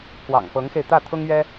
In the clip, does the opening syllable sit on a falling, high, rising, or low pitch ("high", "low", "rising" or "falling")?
low